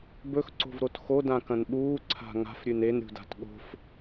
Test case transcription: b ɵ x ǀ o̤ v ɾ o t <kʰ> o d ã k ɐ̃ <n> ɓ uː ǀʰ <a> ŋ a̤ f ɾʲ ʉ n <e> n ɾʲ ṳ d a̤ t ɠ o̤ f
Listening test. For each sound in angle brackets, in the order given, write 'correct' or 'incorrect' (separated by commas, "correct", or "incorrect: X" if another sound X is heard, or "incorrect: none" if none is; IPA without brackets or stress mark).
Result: incorrect: x, correct, incorrect: a̤, correct